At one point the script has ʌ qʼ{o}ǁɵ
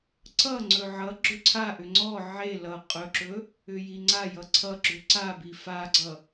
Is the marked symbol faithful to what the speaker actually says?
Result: no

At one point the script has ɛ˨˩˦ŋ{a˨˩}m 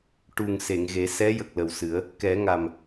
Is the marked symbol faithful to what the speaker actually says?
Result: yes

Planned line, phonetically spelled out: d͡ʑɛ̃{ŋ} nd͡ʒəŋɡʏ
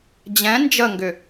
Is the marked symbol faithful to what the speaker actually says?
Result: no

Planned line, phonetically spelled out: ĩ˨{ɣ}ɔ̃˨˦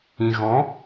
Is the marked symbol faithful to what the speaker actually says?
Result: yes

